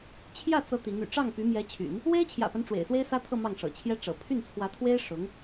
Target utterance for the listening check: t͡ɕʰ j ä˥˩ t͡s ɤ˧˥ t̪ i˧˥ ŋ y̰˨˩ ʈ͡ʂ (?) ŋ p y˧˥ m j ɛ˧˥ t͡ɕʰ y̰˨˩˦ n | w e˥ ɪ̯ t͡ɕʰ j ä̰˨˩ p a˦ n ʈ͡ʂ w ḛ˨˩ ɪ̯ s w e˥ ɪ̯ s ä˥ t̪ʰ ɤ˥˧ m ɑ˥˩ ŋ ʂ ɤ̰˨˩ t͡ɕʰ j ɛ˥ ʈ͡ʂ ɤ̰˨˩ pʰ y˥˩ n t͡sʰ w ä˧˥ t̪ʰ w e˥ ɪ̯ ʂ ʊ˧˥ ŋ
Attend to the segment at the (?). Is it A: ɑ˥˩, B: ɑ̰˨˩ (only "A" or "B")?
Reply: A